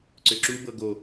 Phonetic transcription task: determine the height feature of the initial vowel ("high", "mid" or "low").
high